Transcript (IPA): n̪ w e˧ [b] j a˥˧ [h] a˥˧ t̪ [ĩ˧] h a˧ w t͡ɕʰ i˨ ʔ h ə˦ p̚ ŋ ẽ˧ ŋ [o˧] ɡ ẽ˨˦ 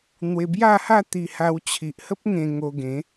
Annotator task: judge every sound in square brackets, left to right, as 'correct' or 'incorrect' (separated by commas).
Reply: correct, correct, incorrect, correct